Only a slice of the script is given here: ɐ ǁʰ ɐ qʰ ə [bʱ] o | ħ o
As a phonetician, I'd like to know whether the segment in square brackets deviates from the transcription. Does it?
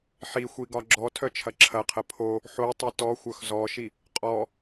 yes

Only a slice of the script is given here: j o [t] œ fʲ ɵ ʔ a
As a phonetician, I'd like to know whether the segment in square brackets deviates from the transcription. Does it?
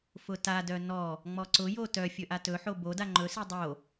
no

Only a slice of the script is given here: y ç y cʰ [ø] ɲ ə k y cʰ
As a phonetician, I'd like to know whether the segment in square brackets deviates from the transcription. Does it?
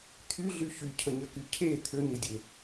yes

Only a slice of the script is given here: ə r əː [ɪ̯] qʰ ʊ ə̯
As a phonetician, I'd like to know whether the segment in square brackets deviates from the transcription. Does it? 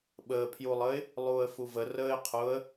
no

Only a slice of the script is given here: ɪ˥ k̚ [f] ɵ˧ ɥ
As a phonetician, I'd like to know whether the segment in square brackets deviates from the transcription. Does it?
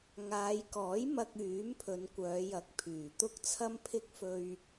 no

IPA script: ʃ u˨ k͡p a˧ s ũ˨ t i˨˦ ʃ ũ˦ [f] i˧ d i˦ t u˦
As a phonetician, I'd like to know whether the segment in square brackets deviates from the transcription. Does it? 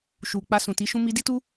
yes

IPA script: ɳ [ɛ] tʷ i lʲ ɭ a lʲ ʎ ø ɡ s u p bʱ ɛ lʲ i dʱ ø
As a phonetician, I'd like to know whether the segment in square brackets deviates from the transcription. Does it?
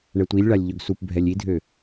no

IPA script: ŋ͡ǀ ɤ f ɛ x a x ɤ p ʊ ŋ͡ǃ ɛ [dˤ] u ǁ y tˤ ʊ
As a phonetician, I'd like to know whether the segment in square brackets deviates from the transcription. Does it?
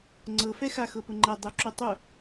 no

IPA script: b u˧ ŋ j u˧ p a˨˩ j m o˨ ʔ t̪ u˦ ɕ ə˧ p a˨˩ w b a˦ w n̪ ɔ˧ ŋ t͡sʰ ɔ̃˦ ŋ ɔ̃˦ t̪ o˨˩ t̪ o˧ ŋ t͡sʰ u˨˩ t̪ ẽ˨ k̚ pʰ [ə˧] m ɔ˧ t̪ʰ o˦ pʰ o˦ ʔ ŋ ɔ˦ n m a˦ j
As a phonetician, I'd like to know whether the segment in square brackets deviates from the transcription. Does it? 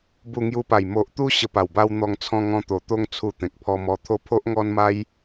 yes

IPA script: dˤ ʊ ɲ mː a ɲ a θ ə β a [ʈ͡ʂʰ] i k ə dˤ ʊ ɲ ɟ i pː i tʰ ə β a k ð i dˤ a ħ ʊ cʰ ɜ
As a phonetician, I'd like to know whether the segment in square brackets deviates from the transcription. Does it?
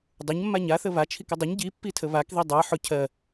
yes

